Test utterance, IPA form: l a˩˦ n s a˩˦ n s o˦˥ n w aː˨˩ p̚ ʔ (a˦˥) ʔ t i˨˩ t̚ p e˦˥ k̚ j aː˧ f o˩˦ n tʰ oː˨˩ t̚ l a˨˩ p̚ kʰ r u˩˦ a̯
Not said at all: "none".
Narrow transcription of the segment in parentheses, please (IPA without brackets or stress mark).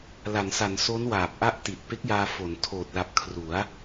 a˦˥